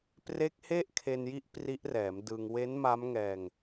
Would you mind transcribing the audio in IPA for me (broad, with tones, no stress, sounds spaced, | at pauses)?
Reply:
p r e˦˥ k̚ h e˥˩ ʔ kʰ e˧ n j i˦˥ ʔ p r i˦˥ ʔ r ɛː˩˦ m d ɯ˧ ŋ w e˦˥ n m a˦˥ m ŋ ɛː˧ ŋ